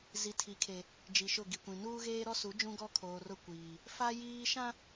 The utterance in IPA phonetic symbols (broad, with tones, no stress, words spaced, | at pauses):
zi˨tʰi˨˦kʰe˨ | d͡ʒi˨ʃʊ˦˨ɡi˨kʷĩ˨ nuː˦ɣeː˦ɾɔ˦su˨˦ d͡ʒũ˦ɡɔ˦kʰoː˨rʊ˦˨ kʷiː˨ | fa˦jiː˦ ʃã˦